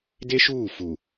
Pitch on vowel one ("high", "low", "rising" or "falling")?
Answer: high